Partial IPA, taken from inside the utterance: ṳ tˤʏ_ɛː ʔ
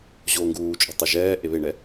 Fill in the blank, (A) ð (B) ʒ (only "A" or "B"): B